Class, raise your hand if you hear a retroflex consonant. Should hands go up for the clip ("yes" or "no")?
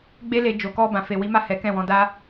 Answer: no